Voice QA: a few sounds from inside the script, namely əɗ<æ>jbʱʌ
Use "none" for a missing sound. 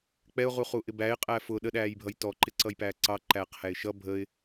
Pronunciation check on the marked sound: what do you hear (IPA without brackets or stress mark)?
æː